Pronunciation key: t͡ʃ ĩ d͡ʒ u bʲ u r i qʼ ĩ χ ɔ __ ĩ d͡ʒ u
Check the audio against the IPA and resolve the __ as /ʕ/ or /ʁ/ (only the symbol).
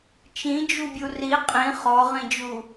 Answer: ʁ